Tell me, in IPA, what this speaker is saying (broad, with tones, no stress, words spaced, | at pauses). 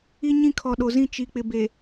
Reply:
i˦ɲĩ˦ kʰɔ˨ɗo˨zĩ˦ t͡ʃi˨k͡pɪ˨be˨